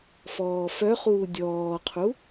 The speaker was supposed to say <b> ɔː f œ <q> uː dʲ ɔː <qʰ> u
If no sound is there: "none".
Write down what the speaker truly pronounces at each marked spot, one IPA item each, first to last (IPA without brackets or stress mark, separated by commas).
f, χ, qʰ